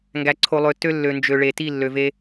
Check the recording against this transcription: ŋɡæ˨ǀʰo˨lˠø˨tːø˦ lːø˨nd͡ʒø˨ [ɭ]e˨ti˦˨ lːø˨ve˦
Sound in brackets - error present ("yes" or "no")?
no